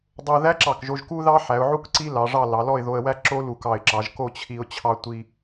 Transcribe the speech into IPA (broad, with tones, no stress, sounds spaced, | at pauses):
dˤ o˧ ð æ˥ ǁ ɑ˧˩ k ʒ o˧ ʒ k u˥ ð ɑ˥ ħ æ˩˧ ʊ̯ ʕ u˥ k ǀ i˥ l ɑ˩˧ ʐ ɑ˥˧ l ɑ˩˧ l ɔ˥˧ ɪ̯ ð o˧ ə̯ w æ˥ ǁ o˥ l u˧˩ k ɑ˧˩ ɪ̯ ǁ ɑ˩˧ ʒ k o˥˧ t͡ɕʰ i˧ ʊ̯ t͡ɕʰ ɑ˧ tʷ i˧